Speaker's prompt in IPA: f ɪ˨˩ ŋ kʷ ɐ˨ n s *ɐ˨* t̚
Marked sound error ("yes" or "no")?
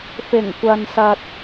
no